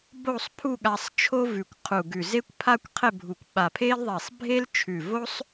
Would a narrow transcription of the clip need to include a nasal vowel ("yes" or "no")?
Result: no